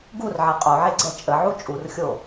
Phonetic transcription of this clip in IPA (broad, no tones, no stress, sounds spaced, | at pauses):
ɡ u r ʕ ɛ qʼ o ʕ e ɡ͡ǀ ɛ t͡ʃʼ ə ʕ u t͡ʃʼ u r xʲ o